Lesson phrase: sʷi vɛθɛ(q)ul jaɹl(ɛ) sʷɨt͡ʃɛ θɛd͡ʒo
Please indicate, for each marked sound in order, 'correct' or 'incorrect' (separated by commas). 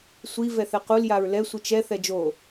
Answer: correct, correct